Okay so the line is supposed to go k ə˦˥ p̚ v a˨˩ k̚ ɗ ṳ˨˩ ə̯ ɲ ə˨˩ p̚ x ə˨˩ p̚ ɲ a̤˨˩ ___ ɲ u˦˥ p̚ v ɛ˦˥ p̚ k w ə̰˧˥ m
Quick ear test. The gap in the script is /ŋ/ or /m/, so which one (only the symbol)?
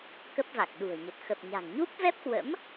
ŋ